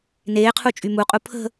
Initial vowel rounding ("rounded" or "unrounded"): unrounded